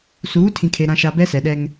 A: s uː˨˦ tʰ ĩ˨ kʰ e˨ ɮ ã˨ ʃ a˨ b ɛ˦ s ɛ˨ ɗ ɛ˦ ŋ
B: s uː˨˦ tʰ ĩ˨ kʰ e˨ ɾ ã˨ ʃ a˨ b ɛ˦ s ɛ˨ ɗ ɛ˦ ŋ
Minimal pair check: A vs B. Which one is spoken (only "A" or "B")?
B